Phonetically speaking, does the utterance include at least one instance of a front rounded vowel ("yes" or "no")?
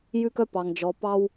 yes